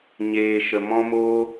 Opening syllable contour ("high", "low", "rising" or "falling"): low